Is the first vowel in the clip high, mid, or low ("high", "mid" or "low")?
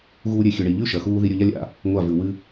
high